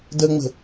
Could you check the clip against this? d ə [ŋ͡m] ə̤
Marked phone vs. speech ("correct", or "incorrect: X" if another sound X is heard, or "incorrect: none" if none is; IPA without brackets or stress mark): correct